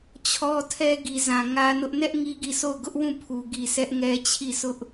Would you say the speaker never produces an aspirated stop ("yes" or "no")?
no